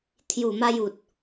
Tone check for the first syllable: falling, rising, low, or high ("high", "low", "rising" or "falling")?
low